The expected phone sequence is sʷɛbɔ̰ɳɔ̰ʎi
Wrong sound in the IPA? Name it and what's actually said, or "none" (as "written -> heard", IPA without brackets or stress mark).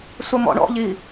b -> m